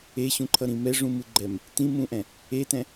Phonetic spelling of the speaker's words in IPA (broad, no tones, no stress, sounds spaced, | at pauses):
e ɕ ũ ǃʰ ʌ ɾ ĩ m ɛ ʐ ũ m ɯ ɡ͡ǃ ɛ m | t ĩ m ũ ʔ ɛ̃ | e t ɛ̃